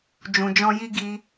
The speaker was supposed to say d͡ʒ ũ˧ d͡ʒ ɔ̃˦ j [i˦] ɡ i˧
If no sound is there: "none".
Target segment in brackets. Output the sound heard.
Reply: i˦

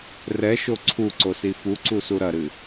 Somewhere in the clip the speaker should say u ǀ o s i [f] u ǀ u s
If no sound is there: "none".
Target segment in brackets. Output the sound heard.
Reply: f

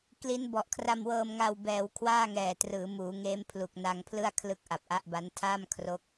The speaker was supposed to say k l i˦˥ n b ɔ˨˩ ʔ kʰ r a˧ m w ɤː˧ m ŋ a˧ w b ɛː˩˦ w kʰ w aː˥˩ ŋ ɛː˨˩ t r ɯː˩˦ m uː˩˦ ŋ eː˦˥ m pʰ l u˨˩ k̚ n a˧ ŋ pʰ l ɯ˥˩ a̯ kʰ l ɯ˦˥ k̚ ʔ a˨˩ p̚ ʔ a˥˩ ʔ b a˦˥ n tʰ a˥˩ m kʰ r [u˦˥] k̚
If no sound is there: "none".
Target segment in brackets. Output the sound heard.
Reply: o˦˥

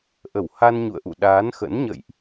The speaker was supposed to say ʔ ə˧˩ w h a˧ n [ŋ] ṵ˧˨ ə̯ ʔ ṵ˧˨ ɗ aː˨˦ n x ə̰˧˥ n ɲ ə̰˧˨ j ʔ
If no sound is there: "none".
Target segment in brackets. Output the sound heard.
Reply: ɲ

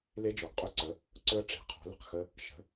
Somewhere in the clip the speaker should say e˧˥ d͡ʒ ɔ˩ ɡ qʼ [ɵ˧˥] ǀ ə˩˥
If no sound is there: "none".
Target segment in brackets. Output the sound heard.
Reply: ɵ˧˥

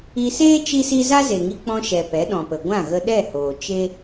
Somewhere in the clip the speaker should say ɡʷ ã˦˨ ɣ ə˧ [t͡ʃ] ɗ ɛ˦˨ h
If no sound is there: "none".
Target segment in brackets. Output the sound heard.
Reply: none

